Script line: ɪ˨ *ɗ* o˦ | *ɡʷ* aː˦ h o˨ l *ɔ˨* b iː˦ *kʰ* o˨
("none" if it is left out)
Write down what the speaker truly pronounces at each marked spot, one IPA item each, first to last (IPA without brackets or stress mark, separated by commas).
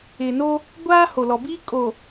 n, ɡʷ, ɔ˨, kʼ